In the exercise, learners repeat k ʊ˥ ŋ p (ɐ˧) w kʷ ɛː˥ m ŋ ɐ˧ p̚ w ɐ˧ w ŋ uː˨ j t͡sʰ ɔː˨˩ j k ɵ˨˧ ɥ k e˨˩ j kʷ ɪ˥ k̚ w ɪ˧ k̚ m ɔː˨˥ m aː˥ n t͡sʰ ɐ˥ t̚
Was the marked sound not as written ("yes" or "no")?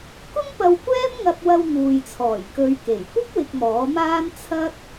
no